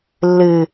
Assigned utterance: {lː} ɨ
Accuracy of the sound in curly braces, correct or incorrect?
correct